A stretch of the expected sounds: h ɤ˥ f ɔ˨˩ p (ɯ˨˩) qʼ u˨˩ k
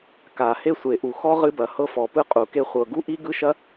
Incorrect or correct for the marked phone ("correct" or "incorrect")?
incorrect